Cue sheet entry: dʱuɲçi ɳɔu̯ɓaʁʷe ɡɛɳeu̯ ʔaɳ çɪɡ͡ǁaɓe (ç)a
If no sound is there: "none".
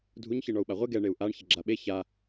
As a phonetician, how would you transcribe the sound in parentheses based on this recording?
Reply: ç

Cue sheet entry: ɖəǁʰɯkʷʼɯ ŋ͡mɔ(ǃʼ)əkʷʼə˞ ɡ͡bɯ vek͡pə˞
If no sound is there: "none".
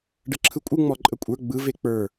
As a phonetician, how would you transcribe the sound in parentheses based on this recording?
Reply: ǃʼ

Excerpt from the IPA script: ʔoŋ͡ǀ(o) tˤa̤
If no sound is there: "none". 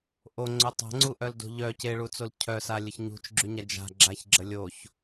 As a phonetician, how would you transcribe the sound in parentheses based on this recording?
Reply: o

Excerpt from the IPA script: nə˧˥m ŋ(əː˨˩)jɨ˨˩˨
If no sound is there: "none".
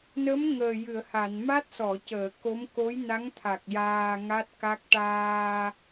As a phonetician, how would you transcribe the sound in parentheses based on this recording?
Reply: əː˨˩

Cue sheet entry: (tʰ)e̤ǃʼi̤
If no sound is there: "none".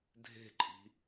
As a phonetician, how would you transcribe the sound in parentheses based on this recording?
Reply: dʱ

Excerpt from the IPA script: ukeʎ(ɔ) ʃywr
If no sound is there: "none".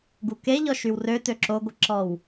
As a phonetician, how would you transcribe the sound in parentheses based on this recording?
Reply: ɔ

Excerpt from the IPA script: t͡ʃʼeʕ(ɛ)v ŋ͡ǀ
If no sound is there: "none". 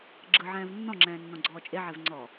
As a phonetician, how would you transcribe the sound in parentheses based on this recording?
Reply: ɛ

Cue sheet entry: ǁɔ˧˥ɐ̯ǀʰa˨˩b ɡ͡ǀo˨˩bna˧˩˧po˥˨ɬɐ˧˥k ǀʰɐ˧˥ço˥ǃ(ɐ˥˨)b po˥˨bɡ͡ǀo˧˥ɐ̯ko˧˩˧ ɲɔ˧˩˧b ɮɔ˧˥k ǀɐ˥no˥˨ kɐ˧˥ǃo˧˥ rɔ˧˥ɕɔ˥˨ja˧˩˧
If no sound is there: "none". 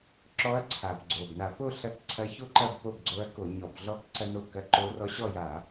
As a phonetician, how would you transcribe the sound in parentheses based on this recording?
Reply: ɐ˥˨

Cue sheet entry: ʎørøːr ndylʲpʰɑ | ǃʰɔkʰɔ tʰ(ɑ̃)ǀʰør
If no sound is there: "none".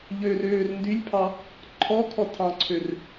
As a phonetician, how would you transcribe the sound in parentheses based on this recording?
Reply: ɑ̃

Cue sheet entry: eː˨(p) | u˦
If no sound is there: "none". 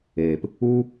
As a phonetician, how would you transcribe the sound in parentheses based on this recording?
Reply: p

